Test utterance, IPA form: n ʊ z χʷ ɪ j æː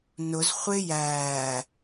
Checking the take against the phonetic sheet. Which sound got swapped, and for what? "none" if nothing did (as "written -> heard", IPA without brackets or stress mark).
none